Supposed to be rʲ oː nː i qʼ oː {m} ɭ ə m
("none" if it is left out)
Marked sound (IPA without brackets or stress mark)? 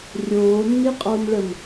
m